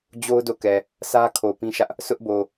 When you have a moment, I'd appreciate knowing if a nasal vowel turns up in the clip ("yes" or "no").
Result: yes